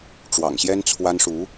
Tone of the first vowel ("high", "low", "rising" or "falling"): low